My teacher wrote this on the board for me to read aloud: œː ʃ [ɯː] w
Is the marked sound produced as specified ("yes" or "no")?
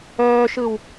no